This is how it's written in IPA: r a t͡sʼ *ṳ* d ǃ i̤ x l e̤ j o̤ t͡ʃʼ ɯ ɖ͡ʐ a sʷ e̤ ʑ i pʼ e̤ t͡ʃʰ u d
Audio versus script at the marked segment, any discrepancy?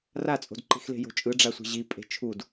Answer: yes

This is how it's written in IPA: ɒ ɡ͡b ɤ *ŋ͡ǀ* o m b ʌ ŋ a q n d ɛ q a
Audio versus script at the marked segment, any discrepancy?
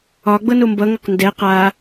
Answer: yes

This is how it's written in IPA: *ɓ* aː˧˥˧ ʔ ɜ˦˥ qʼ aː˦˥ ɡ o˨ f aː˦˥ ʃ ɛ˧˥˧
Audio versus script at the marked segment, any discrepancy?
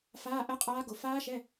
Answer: yes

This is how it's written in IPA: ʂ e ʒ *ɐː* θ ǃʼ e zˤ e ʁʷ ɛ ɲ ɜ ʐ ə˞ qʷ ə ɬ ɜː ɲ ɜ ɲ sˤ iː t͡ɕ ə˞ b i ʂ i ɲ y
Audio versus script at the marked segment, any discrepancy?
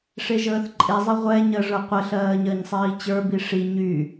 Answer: yes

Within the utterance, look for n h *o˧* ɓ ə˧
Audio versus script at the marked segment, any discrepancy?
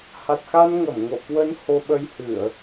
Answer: no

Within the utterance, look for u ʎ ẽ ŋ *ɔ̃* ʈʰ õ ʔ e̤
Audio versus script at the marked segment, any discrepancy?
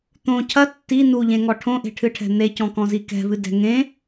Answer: yes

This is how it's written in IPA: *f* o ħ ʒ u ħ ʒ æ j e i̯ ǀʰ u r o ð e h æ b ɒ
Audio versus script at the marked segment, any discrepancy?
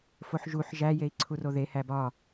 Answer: no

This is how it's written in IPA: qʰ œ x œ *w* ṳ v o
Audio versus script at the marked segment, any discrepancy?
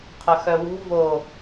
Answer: no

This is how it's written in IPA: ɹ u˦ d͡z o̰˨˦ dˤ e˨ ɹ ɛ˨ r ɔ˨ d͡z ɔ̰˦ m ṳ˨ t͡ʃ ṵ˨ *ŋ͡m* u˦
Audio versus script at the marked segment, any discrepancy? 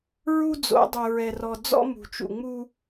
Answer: no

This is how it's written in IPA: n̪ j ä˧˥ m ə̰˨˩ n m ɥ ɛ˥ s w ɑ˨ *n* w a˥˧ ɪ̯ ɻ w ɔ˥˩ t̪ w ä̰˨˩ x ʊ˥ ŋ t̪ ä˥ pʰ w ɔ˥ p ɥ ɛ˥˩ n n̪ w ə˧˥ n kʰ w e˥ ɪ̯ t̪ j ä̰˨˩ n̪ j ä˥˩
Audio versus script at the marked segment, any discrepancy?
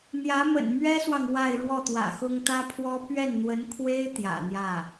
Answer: yes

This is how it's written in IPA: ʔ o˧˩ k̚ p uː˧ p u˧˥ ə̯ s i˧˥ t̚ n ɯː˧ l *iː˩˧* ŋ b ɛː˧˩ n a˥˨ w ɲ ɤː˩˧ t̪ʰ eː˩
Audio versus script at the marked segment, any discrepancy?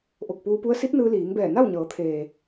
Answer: no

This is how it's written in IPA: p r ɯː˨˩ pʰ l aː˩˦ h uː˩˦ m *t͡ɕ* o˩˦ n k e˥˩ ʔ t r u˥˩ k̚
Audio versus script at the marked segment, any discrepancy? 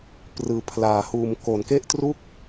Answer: yes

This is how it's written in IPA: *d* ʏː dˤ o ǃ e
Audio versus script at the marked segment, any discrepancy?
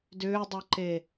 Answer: no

